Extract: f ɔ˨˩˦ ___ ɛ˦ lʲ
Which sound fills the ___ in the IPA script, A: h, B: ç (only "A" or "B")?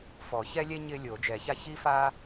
B